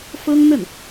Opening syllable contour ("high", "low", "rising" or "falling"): high